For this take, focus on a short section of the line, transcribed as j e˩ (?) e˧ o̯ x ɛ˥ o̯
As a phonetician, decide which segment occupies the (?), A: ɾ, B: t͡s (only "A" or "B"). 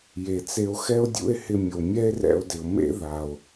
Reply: B